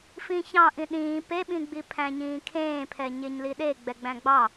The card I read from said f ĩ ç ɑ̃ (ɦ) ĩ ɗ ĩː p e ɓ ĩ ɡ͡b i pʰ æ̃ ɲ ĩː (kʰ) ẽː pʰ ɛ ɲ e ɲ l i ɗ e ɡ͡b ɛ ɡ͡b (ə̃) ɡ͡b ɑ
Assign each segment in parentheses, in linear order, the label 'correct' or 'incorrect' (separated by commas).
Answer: incorrect, correct, incorrect